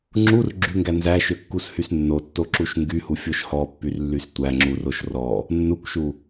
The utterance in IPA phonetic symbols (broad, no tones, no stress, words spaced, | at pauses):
ŋ͡ǁur ɡ͡ǁyŋɡæ nzæʃøkːushys nːotːoǁuʃ ŋɡyhufʲoʃ hɔpːyrlːys tʷæŋ͡ǁuroʃ rɔ | nːukʷʃu